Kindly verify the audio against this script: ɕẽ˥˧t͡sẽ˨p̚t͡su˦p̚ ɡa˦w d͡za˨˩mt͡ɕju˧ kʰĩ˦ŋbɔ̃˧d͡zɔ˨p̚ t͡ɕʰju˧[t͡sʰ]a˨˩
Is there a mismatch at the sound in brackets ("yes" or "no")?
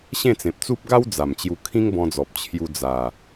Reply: yes